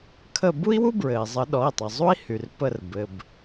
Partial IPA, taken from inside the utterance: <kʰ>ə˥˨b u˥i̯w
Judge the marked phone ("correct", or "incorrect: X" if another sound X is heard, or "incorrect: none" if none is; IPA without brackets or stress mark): correct